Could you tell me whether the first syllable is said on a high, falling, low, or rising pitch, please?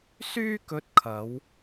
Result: high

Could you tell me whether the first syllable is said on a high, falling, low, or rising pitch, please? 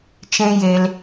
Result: high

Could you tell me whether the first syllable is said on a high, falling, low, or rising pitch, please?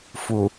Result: low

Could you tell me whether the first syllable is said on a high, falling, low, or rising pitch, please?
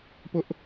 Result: high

